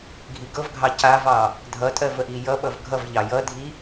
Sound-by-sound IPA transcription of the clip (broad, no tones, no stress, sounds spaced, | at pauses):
ɡʱ i ɡ ɤ v ɡʱ ɑ c a v ɑ | dʱ ʌ tʼ ɜ v ə ʔ i j ʌ ɓ ʌ v ɡʱ ʌ v ʎ ɑ j ʌ dʱ i